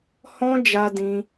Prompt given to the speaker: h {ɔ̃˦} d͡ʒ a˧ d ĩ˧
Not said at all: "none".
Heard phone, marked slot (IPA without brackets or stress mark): ɔ̃˦